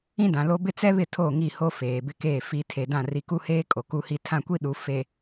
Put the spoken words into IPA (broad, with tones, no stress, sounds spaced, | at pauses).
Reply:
ĩ˦ d ã˨ l o˦ b ɪ˦ t͡s ɛ˦ β ɪ˦˨ tʰ o˦˨ ŋ i˦˨ h o˦ f eː˨ b ɪ˦ k eː˦˨ f i˨ tʰ e˨ d ã˦˨ r i˨ k u˦ h eː˦ kʼ o˨ k u˦ h i˦ tʰ ã˦˨ kʷ i˦ ɗ u˨ f e˨